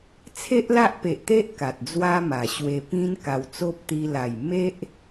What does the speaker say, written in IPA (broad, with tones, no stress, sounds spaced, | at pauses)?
t͡sʰ e˦ ʔ l a˦ ʔ p e˨ ʔ t̪ e˦ ʔ k a˨ t̚ d͡z w a˦ m a˨˩ ɕ w e˧ p ĩ˦ n k a˧ w t͡s o˦ p̚ t̪ i˧ l a˨˩ j m e˦ ʔ